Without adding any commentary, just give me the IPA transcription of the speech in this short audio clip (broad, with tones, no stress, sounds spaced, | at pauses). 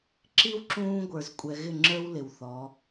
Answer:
ǁ i˦ w ǁ ũː˦ ɡʷ ə˞˨ z kʷʼ ɛ˨ ɣ ɪ˦˨ ŋ͡ǁ ə˞˦ w l ɪ˨ w θ ɔ˨˦